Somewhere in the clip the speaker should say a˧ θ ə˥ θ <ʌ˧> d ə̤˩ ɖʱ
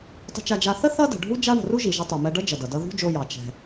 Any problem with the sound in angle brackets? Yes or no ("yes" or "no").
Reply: yes